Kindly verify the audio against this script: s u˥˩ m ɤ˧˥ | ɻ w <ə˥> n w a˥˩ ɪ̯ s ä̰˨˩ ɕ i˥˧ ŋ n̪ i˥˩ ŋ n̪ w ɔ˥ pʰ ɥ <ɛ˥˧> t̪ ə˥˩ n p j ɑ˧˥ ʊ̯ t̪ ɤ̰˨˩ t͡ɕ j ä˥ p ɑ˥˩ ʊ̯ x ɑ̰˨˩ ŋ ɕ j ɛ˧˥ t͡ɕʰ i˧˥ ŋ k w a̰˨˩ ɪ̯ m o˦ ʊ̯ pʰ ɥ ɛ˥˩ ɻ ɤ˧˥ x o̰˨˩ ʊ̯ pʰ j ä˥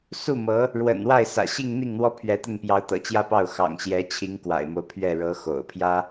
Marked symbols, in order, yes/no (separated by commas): no, no